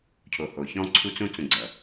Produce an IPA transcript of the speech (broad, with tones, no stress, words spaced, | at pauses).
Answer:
cʰo˨ho˨çɔ̃˦ ǀʰu˦t͡sũ˦ t͡sũ˨ ɡ͡ǀʌ˨